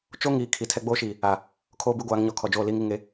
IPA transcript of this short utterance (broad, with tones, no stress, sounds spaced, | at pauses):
t͡ʃ o˦ ŋ iː˨ kʰ i˨ tʰ ɛ˦ ɡ͡b oː˦ ʃ iː˨ | a˨ | kʰ oː˦ b i˦ ɡʷ aː˨˦ ŋ ɲ ɔ˨ kʰ ɔ˨ d͡ʒ oː˦˨ l iː˦ ŋ i˦˨ ŋ e˦